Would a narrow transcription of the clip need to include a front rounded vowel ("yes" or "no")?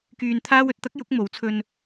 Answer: yes